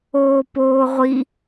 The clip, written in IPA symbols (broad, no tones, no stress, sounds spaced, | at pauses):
oː p oː ʁʷ i